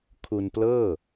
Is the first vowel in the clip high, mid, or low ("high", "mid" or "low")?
high